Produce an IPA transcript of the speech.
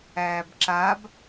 æː b ǁ a b

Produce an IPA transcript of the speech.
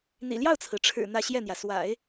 n̪ ḭ˨˩ l j ɑ˥˩ ʊ̯ t͡sʰ ɹ̩˩ ʈ͡ʂʰ ɻ̩˨˩ n̪ ä˥˧ ɕ j ɛ˥˩ n̪ j ä˩ s w a̰˨˩˦ ɪ̯

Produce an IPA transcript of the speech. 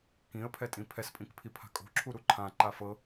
k ĩ ə̯ pʰ ɛ tʼ ĩ pʰ ɛ s pʼ ĩ k pʰ i pʰ a̤ kʼ o̤ ǁʰ u ɾ u ǃʰ ã ǃ a f ɤ

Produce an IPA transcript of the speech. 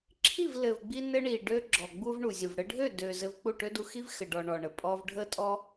ǁʰ i˦˨ v l ɘ˨ v ɡ͡b i˧ n ɘ˧ ɳ i˨ ɖ ø˦ ɡ͡ǁ ɔ˨ ɡ͡b u˧ v ɳ u˨ zʲ u˨ v ɽ ɘ˧ ɖʱ ø˦˨ d ø˨ z ɘ˧ v k͡p u˦˨ ʈ ø˦ d u˧ x i˦ v x ɘ˨ ɖ ɔ˨ ɳ ɔ˨ ɳ ə˨ pʼ ɔ˧ v ɖʱ ə˦ tʼ ɔ˦

